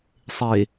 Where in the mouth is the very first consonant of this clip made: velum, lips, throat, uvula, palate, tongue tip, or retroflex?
tongue tip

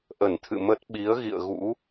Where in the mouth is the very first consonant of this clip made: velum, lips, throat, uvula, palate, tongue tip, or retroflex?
throat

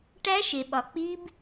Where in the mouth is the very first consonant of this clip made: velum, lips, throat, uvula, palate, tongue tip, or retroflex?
retroflex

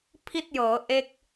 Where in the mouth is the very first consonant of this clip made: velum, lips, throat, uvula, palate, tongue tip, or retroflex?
lips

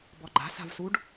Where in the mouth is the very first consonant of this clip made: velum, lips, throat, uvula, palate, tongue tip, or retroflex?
lips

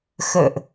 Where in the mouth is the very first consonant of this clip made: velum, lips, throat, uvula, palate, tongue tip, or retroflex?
velum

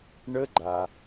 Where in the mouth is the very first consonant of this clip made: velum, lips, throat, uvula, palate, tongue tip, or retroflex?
retroflex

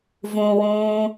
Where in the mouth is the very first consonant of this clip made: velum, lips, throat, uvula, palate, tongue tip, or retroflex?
lips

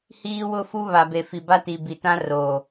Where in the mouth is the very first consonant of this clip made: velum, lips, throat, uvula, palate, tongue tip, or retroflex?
throat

